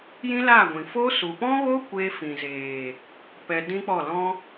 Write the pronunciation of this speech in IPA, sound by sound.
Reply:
j ĩ˦ l a˦˨ ɡʷ ĩ˨ f o˦ s u˨ p ɔ̃˦ ɣ o˦ kʷ e˧ f ĩ˨ z eː˨ | p ɛ˧ d ĩ˦ k͡p ɔ˦˨ l ɔ̃˦

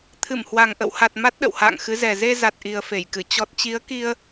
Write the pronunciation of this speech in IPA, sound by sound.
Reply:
t̪ʰ ɨ˧˩ m h w a˨˩ ŋ ʔ ə̰˧˨ w h a˨˩ t̚ m a˦˥ t̚ ɗ ə̰˧˨ w h a̰ː˧˨ ŋ x ɨ˨˦ z ɛ˨˩ z e˧ z a˨˩ t̚ ʔ i˨˩ ə̯ f e˧˩ j k ɨ˧˩ t͡ɕ ɔ˨˩ t̚ t͡ɕ i˨˦ ə̯ k i˧ ə̯

